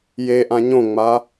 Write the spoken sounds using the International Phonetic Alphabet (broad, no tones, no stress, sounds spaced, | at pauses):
j e ʔ ã ɲ õ ŋ͡m a